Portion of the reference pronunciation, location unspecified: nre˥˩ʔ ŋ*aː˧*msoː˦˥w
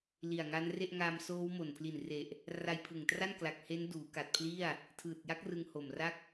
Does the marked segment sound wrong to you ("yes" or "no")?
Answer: no